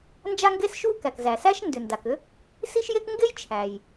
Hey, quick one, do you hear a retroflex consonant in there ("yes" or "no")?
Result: no